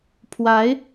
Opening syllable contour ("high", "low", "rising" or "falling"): rising